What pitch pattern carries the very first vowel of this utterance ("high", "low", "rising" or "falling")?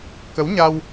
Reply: rising